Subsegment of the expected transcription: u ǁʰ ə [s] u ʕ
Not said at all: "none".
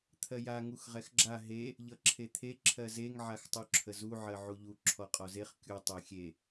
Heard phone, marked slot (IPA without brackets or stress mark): z